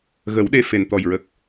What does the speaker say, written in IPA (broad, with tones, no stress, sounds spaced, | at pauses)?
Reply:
ɣ ə˨˩˦ w ɗ e˧ f e˨˩ n t̪ ɔ˨˩ j ɹ ə˨˩ k̚